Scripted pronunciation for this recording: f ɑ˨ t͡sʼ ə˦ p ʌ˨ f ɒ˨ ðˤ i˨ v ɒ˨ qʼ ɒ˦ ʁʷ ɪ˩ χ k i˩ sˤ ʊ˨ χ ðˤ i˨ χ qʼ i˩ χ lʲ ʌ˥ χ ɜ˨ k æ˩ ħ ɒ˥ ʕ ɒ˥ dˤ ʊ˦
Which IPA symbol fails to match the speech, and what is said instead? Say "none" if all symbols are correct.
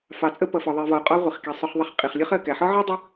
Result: none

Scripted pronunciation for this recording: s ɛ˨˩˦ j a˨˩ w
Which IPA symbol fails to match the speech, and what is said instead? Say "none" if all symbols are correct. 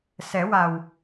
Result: j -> w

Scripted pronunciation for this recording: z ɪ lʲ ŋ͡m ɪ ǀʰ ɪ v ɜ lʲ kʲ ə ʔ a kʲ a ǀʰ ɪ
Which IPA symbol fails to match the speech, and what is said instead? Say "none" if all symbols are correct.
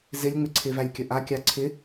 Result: ɜ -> æ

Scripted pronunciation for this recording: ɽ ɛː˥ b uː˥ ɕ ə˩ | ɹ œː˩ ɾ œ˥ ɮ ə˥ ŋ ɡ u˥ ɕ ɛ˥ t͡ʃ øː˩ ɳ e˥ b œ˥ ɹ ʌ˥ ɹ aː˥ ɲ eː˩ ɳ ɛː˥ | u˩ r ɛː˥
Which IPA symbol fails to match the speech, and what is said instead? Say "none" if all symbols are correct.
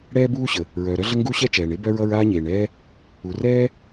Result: øː˩ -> ɛː˩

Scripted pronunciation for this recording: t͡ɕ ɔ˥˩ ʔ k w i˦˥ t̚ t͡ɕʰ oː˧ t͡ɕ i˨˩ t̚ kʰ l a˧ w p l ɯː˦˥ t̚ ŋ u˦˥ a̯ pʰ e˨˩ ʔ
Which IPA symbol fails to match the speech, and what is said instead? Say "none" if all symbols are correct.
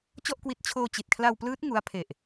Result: none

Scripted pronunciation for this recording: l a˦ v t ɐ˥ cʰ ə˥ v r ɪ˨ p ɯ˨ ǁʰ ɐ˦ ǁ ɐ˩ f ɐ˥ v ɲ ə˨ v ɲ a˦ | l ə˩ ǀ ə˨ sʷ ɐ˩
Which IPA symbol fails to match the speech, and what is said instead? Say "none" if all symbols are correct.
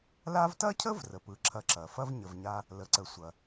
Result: ɪ˨ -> ə˨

